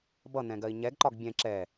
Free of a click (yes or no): no